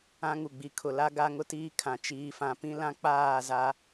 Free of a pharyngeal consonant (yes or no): yes